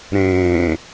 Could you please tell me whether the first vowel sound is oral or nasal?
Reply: nasal